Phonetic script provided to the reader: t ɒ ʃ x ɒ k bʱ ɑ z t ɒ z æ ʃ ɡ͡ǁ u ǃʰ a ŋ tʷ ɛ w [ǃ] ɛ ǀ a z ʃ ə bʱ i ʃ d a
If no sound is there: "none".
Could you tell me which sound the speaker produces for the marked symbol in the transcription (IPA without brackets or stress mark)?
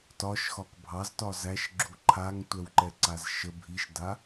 ǃ